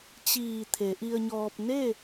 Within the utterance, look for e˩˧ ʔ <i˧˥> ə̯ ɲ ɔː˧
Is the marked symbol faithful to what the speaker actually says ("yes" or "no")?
no